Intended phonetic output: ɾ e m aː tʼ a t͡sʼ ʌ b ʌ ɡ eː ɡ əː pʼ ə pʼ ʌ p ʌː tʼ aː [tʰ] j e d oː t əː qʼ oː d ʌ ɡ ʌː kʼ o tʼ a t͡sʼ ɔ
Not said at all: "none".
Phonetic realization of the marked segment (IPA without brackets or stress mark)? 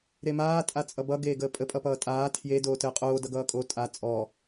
tʰ